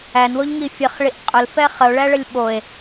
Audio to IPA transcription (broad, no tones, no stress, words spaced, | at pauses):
ænwoʎŋi fʲəχɭiʔ qʼʊlfɛ χəo̯ɭæɭəlʲ ɓoe̯